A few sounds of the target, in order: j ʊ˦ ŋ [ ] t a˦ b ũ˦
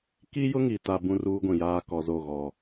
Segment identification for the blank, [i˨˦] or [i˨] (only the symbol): i˨